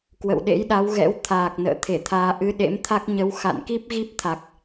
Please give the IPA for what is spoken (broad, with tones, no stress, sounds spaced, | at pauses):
k w ə̰˧˨ w ɗ ḛ˧˥ j ɗ a˨˦ w ɣ ɛ̰˧˥ w t̪ʰ aː˨˩ k̚ n ə̰ː˧˨ t̪ʰ e˧˩ t̪ʰ aː˧ ʔ ɨ˨˦ ɗ ḛ˧˥ m t̪ʰ a˦˥ k̚ ɲ ə˨˦ w x a̰˧˨ n k i˦˥ p̚ ɣ i˦˥ p̚ t̪ʰ a˨˩ k̚